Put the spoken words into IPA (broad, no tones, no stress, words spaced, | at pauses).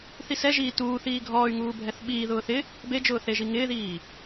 θisɛʒiː tuːθiː ɡʱɔːy̯ŋuː bʱɛθɓiːðʊː θɪ | bed͡ʒʊː θeʒiŋɪːðiː